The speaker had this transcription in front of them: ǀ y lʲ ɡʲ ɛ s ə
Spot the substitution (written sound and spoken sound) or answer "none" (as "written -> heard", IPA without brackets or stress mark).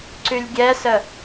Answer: none